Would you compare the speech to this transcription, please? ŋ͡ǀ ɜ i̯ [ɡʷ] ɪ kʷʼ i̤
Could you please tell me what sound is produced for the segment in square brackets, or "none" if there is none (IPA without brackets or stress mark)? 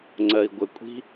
ɡʷ